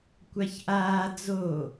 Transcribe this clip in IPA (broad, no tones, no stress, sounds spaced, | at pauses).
kʷ a ç ʔ aː d͡z o